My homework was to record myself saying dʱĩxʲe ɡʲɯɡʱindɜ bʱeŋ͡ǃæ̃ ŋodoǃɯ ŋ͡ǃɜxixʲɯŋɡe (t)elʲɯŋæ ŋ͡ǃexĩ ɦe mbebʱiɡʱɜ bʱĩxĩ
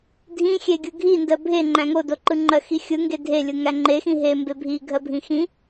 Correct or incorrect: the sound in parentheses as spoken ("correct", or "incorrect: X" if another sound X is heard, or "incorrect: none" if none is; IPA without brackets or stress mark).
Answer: incorrect: dʱ